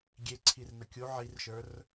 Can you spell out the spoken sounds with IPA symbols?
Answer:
ɡʲeǀʰirnə kʲu ʕirʃə˞r

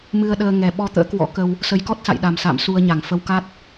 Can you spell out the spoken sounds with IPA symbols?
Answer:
mɨ˧ə̯ɗəː˧ ŋɛ˨˩ɓɔ˧t̪ə̰ː˧˥kwɔ̰˧˥ kə˧w | sə˨˦jkɔ˦˥t̚sa̰˧˨j ɗa˨˩msa̰ː˧˨m su˧ə̯ɲa˧˩ŋfə˧w ka˦˥t̚

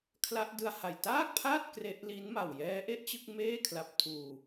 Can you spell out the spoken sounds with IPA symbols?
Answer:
kʰla˦˥ʔdɯ˧a̯ha˨˩j taː˥˩k̚pʰaː˥˩t̚ kre˦˥ʔ li˦˥nma˨˩w jɛː˦˥ʔe˥˩ʔt͡ɕɯ˥˩k̚ meː˥˩kʰla˨˩p̚tʰuː˨˩

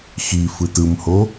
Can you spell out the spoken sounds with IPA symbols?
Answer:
xifɯt ɯmho

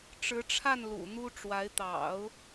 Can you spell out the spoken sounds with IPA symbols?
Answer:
ʈ͡ʂɻ̩˧˥ʈ͡ʂʰa˥˩n lṵ˨˩n̪u˥ʈ͡ʂwa˧˥ɪ̯ t̪ɑ̰˨˩˦ʊ̯

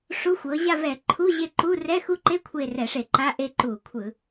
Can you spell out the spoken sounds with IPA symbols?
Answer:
ʂu˧˥˧xʷɤ˨˦ ʑa˦˨vɛ˧˩˧ ǃʰu˧˥˧ʑe˦˨ǃu˧˥˧ rɛ˧˥˧xu˦˨ǃe˧˥˧ kʷʰe˦˨rɛ˧˩˧ʂe˧˩˧ǃa˧˥˧ ʔe˦˨ǃu˧˩˧ kʷʰɯ˧˩˧

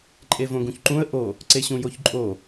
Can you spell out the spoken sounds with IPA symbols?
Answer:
ǃʼevõɡũçǃũə̯ ʔo | ǀeɕũjoçǃʼo

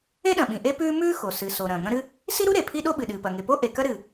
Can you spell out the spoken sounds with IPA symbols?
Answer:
e˥ɗɐ̃˩ɓĩ˩ ʔe˥pʉː˥ mʉː˥xo˩ sɨ˩ so˩ ɾɐ̃ː˩ŋɐ̃˥ɾɨ˥ | si˥ɾu˥ ɾe˩pʰi˥ɗo˥ɓɨ˩ ɗɨː˩pɐ˩ŋe˩ po˥ʔe˩ kɐ˥ɾɨː˩

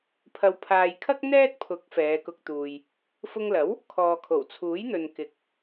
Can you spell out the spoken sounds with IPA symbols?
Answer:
pʰɐ˨wpʰaː˨jkʰɐ˥k̚ n̪ɛː˥t̚pʰʊ˨˥k̚ fɛː˨˧kʊ˧k̚t̪uː˨j | fʊ˧ŋlɐ˨˥w | kʰɔː˨kʰo˨˩w t͡sʰuː˨˥jn̪ɵ˨nkɪ˨˥k̚

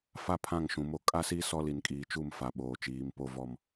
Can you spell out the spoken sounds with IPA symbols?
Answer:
fa˦ pʰã˦˨ŋʃũ˨mo˦ kʼa˦si˦ sɔ˦li˨nkʼiː˨t͡ʃu˦˨m fa˨ɓoː˨t͡ʃiː˨˦m po˦vɔ˦m

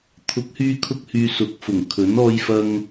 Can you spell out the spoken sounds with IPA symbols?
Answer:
t̪ʰʊ˨˥k̚hyː˧kʰʊ˧k̚hyː˨ sʊ˨˥k̚fʊ˨˩ŋkʰɵ˨˥n ɔː˧jfɐ˧ŋ

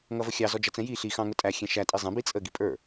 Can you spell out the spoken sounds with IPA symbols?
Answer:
ŋʌvəxʲɑ zɔd͡ʒʌt͡sɛ̃ji ɬi xɑ̃ŋʊtʼæ xʲɛ̃ʃæ tʼizˤɛ̃ bit͡sʼə ɡipʼə˞

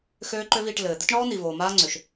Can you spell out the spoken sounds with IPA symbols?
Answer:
xøː˦ǃø˦viː˧ʈ lɘː˨ d̪ɘ˦tɳɔː˦n̪i˨voː˨ maː˦ŋ͡ǀø˨ʃ

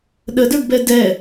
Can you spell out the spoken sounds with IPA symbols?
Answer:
ɗədə˞ɡbɛ dɛ

